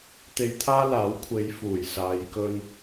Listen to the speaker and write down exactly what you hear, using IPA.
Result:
t̪ e˧ j t̪ʰ aː˥ l aː˨˥ w kʷʰ e˨˧ j f uː˨˩ j s aː˨ j k ɵ˧ n

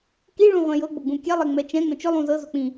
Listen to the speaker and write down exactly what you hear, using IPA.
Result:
k i ɭ ũ ʁʷ ɛ̃ j ɤ ɡ͡b ʊ ɡ͡b ũ kʲ ɛ lˠ ɛ ŋ͡m ɛ t͡ʃ ɛ̃ ŋ͡m ɛ̃ t͡ʃ ʊ lˠ ũ z ɤ z ʊ k͡p ĩ

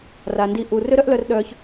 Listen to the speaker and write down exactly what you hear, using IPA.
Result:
r a˨ n d i˧ ʔ u˨ r ø˦ ɾ œ˦ ʔ l œ˧ r ɗ œ˧ ç

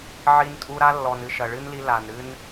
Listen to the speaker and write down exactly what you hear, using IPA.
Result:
ʕ i˧ n tʼ u˧ ɾ a˦ lː ɔ˨ n ɨ˦˨ ʃ ɐ˨ ɭ ɨ˦ n l i˧ l a˨ n ɾ ɨ˦ n

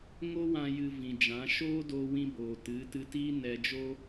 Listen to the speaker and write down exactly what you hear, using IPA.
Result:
ŋ o˦ w ã˧ j ɨ˧ v ĩ˨ d͡ʒ ã˨˦ ʃ oː˦ d oː˧ w ĩ˧ b oː˨ t ɨ˨˦ t ɨ˧ t iː˦ n ɛ˧ d͡ʒ o˦

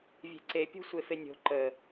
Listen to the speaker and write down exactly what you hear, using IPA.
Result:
vʲ e̤ ǀ e pʲ o̤ sʷ e f e nʲ o̤ ǃ ə

